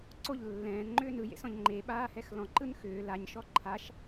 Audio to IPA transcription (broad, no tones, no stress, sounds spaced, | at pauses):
ǀ o ʎ lː ɛ̃ː n ŋ͡ǃ ʏː n ɯ j ḛ s ɔ̃ ʎ ŋ͡ǃ e ɓ aː h ɛ x l ɔ̃ ǃ ɯ n x ʏː l a ɲ ʃ ɔ ǃʰ a ʃ